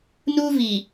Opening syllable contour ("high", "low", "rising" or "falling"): high